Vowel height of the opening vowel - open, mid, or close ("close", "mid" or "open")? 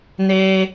mid